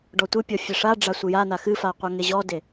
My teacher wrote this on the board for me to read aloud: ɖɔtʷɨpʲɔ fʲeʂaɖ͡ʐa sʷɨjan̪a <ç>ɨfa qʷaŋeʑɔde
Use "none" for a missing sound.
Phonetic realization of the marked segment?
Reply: x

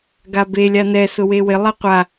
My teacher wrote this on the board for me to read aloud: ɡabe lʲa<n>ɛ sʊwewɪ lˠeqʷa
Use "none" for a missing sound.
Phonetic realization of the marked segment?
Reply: n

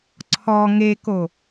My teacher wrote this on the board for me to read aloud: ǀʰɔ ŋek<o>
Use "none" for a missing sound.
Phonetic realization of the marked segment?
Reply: o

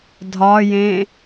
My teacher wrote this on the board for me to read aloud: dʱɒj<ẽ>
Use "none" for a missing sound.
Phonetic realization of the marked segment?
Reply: ẽ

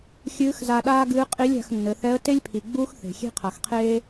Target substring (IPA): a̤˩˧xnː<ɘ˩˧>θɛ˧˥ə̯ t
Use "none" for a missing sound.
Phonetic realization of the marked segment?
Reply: ɘ˩˧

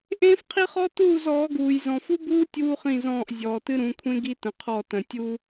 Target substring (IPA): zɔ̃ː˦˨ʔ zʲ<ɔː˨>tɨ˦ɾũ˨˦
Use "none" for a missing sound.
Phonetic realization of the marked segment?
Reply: ɔː˨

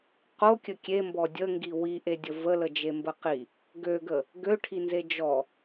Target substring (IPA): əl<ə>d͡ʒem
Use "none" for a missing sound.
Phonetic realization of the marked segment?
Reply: ə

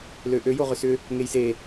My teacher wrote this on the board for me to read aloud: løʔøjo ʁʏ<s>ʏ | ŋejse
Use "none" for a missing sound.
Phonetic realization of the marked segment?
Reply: s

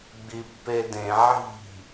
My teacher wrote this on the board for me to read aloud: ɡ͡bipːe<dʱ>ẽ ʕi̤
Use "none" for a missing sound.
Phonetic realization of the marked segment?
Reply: d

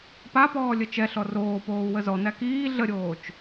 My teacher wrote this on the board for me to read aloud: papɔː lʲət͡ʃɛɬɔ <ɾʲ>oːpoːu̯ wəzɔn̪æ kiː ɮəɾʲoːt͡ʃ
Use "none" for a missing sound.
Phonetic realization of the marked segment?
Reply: r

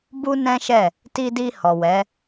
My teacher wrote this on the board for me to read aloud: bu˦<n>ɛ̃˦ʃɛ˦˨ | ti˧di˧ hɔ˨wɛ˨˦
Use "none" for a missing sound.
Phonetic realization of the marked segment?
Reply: n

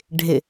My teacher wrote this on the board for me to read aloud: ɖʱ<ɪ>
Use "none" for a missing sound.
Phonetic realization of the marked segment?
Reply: ɪ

